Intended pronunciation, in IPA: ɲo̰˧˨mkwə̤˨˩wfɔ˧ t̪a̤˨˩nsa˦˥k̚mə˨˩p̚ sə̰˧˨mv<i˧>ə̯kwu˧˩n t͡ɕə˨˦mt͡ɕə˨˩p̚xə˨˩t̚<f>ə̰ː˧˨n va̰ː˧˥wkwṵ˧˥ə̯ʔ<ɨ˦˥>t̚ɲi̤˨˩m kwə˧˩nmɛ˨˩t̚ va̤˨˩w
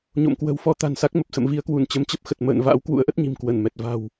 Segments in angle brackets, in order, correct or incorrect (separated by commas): correct, incorrect, incorrect